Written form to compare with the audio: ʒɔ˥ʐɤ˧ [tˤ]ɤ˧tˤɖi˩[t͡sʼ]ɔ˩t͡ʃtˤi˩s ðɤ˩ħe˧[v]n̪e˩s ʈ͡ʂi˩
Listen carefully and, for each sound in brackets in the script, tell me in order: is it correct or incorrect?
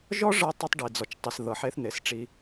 correct, incorrect, incorrect

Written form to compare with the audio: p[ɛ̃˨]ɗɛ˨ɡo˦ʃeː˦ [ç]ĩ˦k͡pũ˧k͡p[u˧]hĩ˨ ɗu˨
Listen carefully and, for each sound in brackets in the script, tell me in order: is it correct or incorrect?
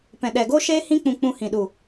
correct, incorrect, incorrect

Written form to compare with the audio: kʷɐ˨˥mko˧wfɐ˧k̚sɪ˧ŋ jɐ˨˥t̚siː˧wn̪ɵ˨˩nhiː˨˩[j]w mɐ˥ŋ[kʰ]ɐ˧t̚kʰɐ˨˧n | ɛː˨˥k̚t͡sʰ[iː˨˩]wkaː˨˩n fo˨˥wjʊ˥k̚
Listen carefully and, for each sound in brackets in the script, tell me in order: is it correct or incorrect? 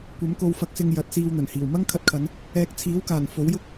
incorrect, correct, incorrect

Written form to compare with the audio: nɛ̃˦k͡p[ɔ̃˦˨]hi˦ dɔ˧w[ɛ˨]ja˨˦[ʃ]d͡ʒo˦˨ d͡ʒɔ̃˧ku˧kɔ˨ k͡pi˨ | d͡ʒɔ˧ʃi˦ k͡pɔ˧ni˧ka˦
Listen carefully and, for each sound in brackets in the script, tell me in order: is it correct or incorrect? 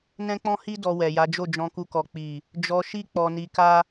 incorrect, correct, incorrect

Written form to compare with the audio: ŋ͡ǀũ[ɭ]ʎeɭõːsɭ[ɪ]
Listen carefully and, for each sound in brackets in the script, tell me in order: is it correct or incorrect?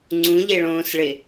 incorrect, correct

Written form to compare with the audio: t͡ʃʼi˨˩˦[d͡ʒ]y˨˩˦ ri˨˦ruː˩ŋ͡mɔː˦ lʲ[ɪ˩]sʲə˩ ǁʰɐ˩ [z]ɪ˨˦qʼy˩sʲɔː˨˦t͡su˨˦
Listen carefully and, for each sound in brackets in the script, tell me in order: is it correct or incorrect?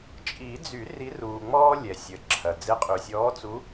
incorrect, incorrect, incorrect

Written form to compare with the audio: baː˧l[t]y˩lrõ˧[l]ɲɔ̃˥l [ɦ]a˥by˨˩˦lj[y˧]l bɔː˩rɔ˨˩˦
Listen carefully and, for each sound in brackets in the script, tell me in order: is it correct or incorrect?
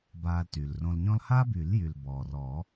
correct, correct, incorrect, incorrect

